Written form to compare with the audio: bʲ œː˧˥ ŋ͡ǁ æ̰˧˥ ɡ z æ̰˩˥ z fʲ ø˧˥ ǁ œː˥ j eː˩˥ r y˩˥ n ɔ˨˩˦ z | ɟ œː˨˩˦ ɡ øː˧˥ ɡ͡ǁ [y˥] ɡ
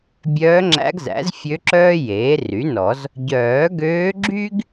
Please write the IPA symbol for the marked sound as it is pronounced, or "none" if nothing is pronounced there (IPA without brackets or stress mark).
y˥